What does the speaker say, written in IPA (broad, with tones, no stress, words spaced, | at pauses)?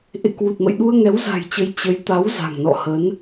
ʔḛ˧˨kwu˨˩t̚mə̰˧˨j ɗu˧ə̯ŋɛ˨˦wza̤˨˩jt͡ɕə˨˦j t͡ɕə˨˦j t̪a˨˦w za̤˨˩ŋnɔ̰˧˨hə˨˦n